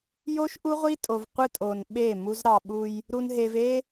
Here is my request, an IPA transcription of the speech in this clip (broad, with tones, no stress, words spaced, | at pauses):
jo˦ʃ ʔu˦ʁʷi˦tʼo˨v qʷɯ˦tʼo˨n ɓe˦˨mu˦z ɾɑ˨ɓu˦j | ɾu˨nɦe˨v e˦